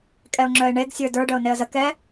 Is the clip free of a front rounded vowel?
no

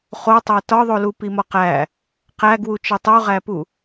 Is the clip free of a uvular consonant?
no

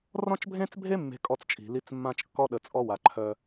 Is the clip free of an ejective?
no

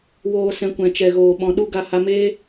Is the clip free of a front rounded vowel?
yes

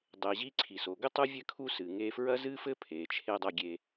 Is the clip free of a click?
no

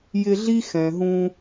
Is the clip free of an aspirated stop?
yes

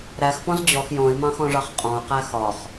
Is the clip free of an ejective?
no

